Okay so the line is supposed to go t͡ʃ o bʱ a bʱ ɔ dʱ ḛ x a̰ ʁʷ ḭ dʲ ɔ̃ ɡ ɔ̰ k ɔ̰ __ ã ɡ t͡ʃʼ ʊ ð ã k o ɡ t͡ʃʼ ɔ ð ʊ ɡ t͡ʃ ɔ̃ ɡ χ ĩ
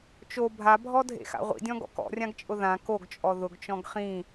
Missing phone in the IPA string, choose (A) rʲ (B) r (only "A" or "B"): A